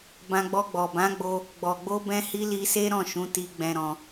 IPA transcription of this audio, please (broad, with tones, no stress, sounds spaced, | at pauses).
b ã˧ ɡ͡b ɔ˧ ɡ͡b ɔ˨ b ã˨˦ ɡ͡b o˧ | ɡ͡b ɔ˨ ɡ͡b o˧ b ɛ̃˧ h i˧ l i˧ s e˦ ɾ ɔ̃˦˨ ʃ ũ˨˦ t i˧ ɡ͡b ɛ̃˧ ɾ ɔ̃˧